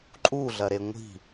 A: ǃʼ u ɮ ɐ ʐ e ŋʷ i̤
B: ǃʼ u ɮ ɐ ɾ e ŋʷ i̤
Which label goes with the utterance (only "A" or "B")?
B